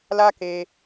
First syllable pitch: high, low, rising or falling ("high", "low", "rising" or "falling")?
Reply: high